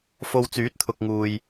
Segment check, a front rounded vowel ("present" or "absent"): present